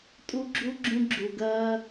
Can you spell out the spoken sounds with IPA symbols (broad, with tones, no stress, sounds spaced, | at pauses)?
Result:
tʼ u˦ ɡ͡ǁ u˦ ɡ͡ǁ ũ˦ ɡ͡ǁ u˧ ɡ ɜː˦